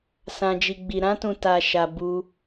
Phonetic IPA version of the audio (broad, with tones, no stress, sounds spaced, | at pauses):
s ã˧ d͡ʒ i˧ ɡ͡b i˧ ɾ ã˦ t ũ˧ t a˧ ʃ a˧ b u˧